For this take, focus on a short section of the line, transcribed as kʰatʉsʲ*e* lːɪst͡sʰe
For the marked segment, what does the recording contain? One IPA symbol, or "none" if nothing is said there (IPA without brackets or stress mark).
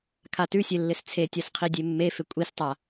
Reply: e